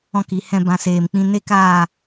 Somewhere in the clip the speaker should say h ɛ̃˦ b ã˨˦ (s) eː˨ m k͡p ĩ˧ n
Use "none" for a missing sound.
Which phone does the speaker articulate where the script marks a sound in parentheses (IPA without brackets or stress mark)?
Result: s